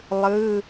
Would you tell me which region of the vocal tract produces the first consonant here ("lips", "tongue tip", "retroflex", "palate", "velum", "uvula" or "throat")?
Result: tongue tip